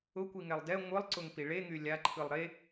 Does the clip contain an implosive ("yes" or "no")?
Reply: no